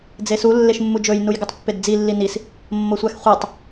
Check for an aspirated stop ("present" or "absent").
absent